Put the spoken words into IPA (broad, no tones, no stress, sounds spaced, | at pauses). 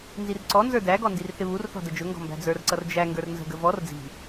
n z i r ǀ ɔ n z ə˞ d æ ɡ ɔ n d i r θ ɪ β u r θ ɔ̤ d ə d͡ʒ ʊ ŋ ɡ ɔ̤ m b æ̤ d͡z ə˞ r ǀ ʌ r d͡ʒ æ ŋ ɡ ə˞ r n z ə̤ ɡ ə v ɔ r d͡z i̤